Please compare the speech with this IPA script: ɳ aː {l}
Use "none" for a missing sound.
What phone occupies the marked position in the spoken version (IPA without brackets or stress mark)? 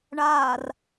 r